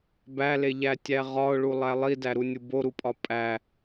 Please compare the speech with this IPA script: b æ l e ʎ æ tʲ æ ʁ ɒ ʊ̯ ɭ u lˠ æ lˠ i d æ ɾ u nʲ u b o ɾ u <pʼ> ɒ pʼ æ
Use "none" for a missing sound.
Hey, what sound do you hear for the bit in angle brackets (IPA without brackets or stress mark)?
pʼ